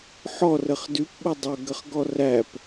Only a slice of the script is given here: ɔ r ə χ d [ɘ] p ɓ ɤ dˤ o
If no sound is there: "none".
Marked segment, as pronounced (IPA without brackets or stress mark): ʉ